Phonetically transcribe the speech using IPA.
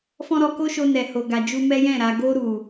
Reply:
f ɔ̃˦ ɾ ɔ˧ k o˦ ʃ o˧ n ɛ˨ h o˨ ɡ a˨ d͡ʒ u˧ m ɛ˦ j ɛ̃˦˨ ɾ a˨ ɡ o˧ ɾ u˨

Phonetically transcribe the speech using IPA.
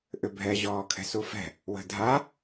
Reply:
ʔ ʏ bʱ ɛ ʑ ɔː kʰ ɛ̤ s u f ɛ̤ | w ə̤ dʱ a

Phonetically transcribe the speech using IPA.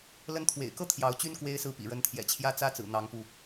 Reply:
l ə˧˥ n t̪ʰ w ḛ˨˩ ɪ̯ k ɤ˥˩ t̪ʰ j ɑ˧˥ ʊ̯ t͡ɕ y˥ n k w e˥ ɪ̯ s ɹ̩˥˩ p ḭ˨˩ ɻ ə˧˥ n t̪ʰ j ɛ̰˨˩ t͡ɕʰ j ä˥ t͡s ä˥ t͡s ɹ̩˨˩ n̪ ɑ˧˥ ŋ p u˧

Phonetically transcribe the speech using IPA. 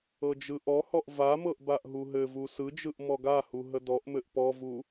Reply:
ɤ d͡ʒ ɯ ʔ ɔ h ɔ ʔ v a m ɤ ʔ b a ʔ ɦ u ɦ ɘ v u s ɯ d͡ʒ ɯ ʔ m ɔ ɡ a h u ɦ ə d ɔ ʔ m ɘ ʔ p ɔ v u

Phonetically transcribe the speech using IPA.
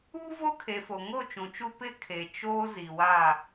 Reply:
u˦ v o˦ kʰ e˨ f o˨ ŋ o˦˨ t͡ʃ ũ˨ t͡ʃ u˦ p ɪ˦ kʰ e˨ t͡ʃ oː˦ z i˨ w a˦˨

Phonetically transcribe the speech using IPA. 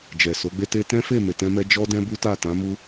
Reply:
d͡ʒ ɛ˨ s o˨˦ ɡ͡b e˦ t e˧ t ɛ̃˦ f e˦˨ m e˨ t ɛ̃˧ m ɛ˧ d͡ʒ ɔ˦ d ɛ̃˦ b u˦ t a˦˨ t ã˨˦ m u˦

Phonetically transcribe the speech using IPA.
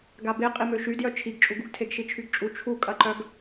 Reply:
ɡ a b e qʼ i m ø ʃ y d j œ t͡ʃʰ i ɡ t͡ʃʼ u ɡ u ɡ tʰ e ɡ ʃ i t͡ʃʰ y ɡ t͡ʃʼ u t͡ʃʰ u kʼ ɐ ǃ œ ɡ

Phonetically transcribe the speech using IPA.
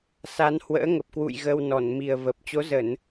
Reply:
s a˨˦ n h w ə̰ː˧˥ ŋ ə˨˩ p̚ k w ṵ˧˨ j ɣ ə˧ w n ɔ˧˩ n m i˨˩ ə̯ v ə˨˩ p̚ t͡ɕ o˨˦ z ə˧˩˨ n

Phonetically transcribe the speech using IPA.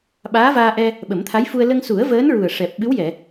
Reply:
ɓ aː˧˥ v aː˧ ʔ ɛ˧ | ɓ ə˨˩˦ m t̪ʰ a˧˥ j f u˧ ə̯ l ə˧ ŋ s u˨˩˦ ə̯ v əː˧˥ n ɹ u˨˩ ə̯ ʂ ɛ˨˩ p̚ ɓ ɨ˧˥ w j ɛ˨˩˨

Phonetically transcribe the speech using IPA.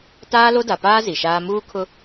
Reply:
t aː˦ l o˦ d a˨ p aː˦ z i˨ ʃ aː˦ m uː˦ kʰ ʊ˦

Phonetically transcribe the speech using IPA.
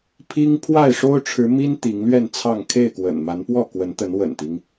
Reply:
pʰ i˦ ŋ pʰ w a˥˨ ɪ̯ ʂ o˦ ʊ̯ ʈ͡ʂʰ ɻ̩˨˦ m i˦ n t̪ i˨˦ ŋ l ɥ ɛ˥˨ n t͡sʰ ɑ˥˨ ŋ kʰ e˥˨ ɪ̯ k w ə̰˨˩ n m a˨˦ n p w ɔ˥˨ k w ə˨˦ n t̪ ə˨˦ n w ə̰˨˩ n t̪ i˦ ŋ

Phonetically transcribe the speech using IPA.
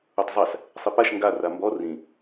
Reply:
u tˤ zˤ a s | sˤ i p a ʃ ŋ ɡ a r a m b ɔ r ĩ

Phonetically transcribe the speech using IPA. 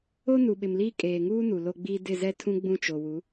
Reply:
o˦ n u˨ ɓ ɪ˨ m l iː˦ kʼ eː˨ ŋ uː˦ n u˨ l o˦ ɡ͡b iː˦ d ɪ˦˨ z ɛ˦ tʰ ũ˦ ɡ͡b ũ˦ t͡ʃ o˨ w u˨˦

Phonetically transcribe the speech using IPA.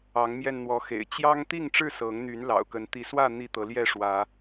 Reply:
ɑ˨˦ ŋ m j ɛ˧ n n̪ w ɔ˨˦ x ḛ˨˩ ɪ̯ t͡ɕ j ɑ˦ ŋ t̪ i˥˨ ŋ ʈ͡ʂ ɻ̩˥˨ s ɤ˨˦ ŋ n̪ y˨˦ n l ɑ̰˨˩ ʊ̯ k ə˨˦ n t̪ i˨˦ s w ä˥˨ n̪ i˥˨ t̪ ɤ˨˦ l j ɛ˥˨ ʂ w ä˨˦

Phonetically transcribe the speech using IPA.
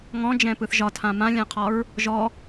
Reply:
ŋ ɔ̃ d͡ʒ ɛ̃ p ɯ θ ʒ ɒ tʰ ã m ã lʲ ã qʰ ɒ ɹ | ʒ ɔ

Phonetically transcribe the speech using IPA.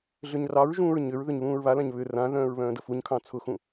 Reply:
ɮ ʏ ɲ r ɑ ɹ ʒ ũː ɹ ɲ ʏ ɹ ð ʏ ɲ β ũː ɹ β a l ã ɲ β ʏ r ã ð œ̃ː ɹ β œ̃ː d ə f u ɲ kʰ ɑ̃ t͡sʰ ʊ x ũ

